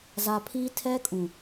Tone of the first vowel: low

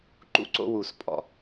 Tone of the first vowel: falling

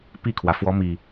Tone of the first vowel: falling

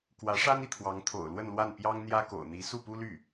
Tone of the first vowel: rising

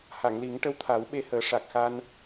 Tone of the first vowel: low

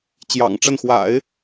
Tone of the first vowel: low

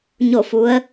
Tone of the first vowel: falling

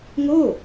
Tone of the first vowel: falling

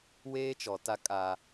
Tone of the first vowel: high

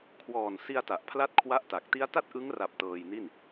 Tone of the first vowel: low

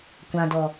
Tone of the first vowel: low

